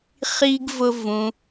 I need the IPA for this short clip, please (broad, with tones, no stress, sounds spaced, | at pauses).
χ i˦ ɡ v ʊ˦ v ũ˧